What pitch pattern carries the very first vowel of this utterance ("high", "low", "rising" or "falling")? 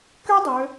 high